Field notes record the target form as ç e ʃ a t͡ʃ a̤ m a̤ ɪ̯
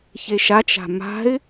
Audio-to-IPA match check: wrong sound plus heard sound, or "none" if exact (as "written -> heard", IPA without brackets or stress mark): none